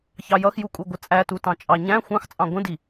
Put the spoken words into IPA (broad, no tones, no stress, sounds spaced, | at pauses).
ç ɑ j ʌ x j u kʼ u ɡʷ ə t͡sʼ æ t u t ɑ̃ t͡ʃʼ ɑ ɲ æ̃ xʷ ɑ̃ x t͡sʼ ɑ̃ ɡʷ ə̃ d i